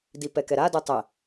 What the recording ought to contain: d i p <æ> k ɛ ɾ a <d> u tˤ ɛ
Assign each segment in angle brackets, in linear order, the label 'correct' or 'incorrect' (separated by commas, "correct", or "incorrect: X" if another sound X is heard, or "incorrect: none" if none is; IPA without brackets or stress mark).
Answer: incorrect: ɛ, correct